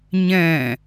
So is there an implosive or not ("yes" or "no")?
no